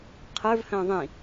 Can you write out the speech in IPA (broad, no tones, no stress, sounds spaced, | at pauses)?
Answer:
qʰ ə˞ v h ə̃ː ðˤ ĩ